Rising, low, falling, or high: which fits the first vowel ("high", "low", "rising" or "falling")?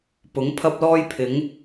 rising